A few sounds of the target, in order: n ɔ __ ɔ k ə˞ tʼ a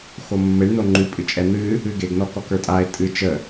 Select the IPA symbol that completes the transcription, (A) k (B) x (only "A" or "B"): A